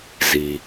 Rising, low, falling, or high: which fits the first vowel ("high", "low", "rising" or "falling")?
low